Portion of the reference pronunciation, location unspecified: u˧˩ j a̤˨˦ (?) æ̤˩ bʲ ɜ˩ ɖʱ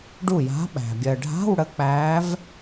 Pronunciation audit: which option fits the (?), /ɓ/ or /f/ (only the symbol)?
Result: ɓ